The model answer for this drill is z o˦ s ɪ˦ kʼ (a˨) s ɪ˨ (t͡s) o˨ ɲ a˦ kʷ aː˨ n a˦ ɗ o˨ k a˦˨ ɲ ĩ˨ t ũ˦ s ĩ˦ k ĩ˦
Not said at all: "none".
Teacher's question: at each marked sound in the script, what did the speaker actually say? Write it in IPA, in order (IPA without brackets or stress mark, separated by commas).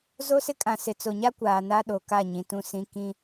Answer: ã˨, t͡s